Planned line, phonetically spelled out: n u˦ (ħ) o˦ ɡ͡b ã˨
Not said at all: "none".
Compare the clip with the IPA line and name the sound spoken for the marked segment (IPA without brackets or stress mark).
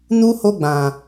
h